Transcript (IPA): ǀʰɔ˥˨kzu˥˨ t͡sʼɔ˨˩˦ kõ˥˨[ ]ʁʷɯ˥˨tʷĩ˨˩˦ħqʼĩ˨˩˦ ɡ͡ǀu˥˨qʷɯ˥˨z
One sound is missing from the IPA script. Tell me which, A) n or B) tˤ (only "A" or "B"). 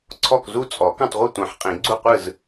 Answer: B